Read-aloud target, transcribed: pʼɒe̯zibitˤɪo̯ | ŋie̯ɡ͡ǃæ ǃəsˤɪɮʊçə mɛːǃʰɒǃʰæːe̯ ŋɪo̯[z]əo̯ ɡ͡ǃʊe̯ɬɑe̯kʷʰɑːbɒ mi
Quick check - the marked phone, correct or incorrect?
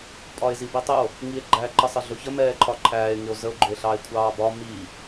correct